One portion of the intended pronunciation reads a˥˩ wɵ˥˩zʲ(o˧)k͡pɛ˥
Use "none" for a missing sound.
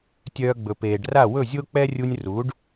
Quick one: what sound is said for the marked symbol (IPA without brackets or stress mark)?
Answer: o˥